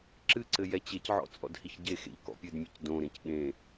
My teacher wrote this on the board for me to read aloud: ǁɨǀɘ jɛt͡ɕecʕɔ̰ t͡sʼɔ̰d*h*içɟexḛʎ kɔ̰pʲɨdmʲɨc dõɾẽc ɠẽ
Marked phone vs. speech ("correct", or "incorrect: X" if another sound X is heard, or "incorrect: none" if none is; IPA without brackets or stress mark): correct